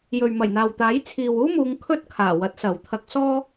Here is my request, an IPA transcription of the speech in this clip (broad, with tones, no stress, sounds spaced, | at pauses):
j ɵ˨ ɥ m ɐ˨˩ j n̪ aː˨ w t̪ aː˨˥ j t͡sʰ iː˨ w uː˥ m uː˨˧ ŋ kʰ ɵ˥ t̚ kʰ aː˨˩ w ɐ˨˥ t̚ s ɐ˨ w t̪ʰ ɐ˧ k̚ s ɔː˥